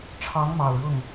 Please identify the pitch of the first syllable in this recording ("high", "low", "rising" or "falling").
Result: rising